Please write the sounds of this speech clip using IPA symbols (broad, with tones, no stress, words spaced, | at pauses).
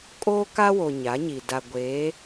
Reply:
kʼoː˦ka˦wo˨ ɲa˨˦ɲi˨ da˨ ɡʷeː˨˦